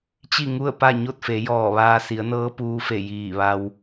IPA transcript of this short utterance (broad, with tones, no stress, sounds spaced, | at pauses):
t͡ɕ i˥˨ ŋ u˥˨ ə̯ p a˥˨ ɲ o˥˨ t̚ f e˩˧ j ɔː˧˩ ʋ aː˧ s i˩˧ ə̯ n ɤː˧˥ p uː˧ f e˧˩ j iː˧˩ ʋ a˧ w